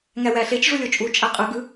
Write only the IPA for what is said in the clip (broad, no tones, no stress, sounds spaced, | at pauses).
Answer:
ŋ æ w æ ɬ e t͡ʃ ʐ u lʲ o t͡ʃʼ u t͡ʃʼ æ qʼ ɯ ɡ ɯ